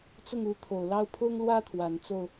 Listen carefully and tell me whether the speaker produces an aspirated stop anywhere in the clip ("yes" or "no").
yes